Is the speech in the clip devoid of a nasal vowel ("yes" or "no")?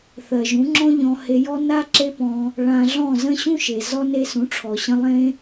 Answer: no